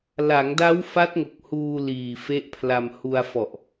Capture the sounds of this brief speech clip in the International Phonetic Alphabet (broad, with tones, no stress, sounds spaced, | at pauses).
l a˩˦ ŋ d a˦˥ w f a˦˥ t̚ ŋ o˨˩ k̚ h uː˧ l iː˨˩ f e˦˥ ʔ pʰ l a˧ m h u˧ a̯ f ɔ˨˩ ʔ